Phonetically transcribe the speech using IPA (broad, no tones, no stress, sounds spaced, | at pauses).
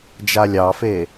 d͡ʒ a lʲ ɑ f e